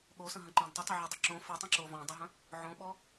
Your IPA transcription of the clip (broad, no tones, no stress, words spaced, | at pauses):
ɠosə̃ɦə̃ǃɔ̃d tˤʊtˤʊʕedˤə ǁõ fətˤə̃ǁo vɔ̃dˤəɦə̃ | ʕõɓɔ